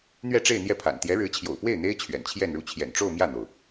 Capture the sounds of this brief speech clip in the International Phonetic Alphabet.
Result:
n̪ ɥ ɛ˥˧ ʈ͡ʂ e˥˧ ɪ̯ n̪ j ɛ˥˩ pʰ a̰˨˩ n t̪ j ɛ˧˥ ɻ ɻ̩˧˥ t͡ɕʰ j o̰˨˩ ʊ̯ p w e˥˩ ɪ̯ n̪ e˥ ɪ̯ t͡ɕʰ ɥ ɛ̰˨˩ n t͡ɕʰ j ɛ˥˧ n ɻ u˥˩ t͡ɕʰ j ɛ̰˨˩ n ʈ͡ʂ o˥˧ ʊ̯ m j ä˥˩ n̪ o˩ ʊ̯

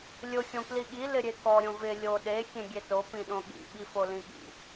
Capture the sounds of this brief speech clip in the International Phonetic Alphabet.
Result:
lʲ ʊ xʲ õ k l i ɠ i l ɪ ɾʲ e k ɔ ɾʲ õ v ɪ lʲ o ɗ e xʲ ẽ ɡʲ e t o p ĩ ɗ õ ɠ ḭ ɓ i f o l ĩ ɠ ḭ

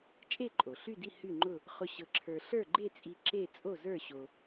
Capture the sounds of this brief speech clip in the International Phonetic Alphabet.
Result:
t͡ʃʼ e˥˧ ǃʼ o˩ ɬ y˥˧ d i˥˧ h y˥˧ ŋ͡ǃ ʊ˥˧ | χ ʊ˧ ɕ ɤ˧ ǁʰ ə˞˧ ɬ ə˞˥˧ ɡ͡ǃ e˥˧ t͡sʼ i˧ ǁ e˥˧ t͡sʼ o˥˧ z ə˞˥˧ ɕ o˧

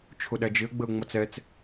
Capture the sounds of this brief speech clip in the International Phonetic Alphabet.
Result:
t͡ʃʰ ʊ ɗ æ d͡ʒ ɪ ə̯ ɡ͡b ə ʊ̯ ŋ͡m ʌ t͡s ɛ t͡s

